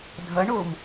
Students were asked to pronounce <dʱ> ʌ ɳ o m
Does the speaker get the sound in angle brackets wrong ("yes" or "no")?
no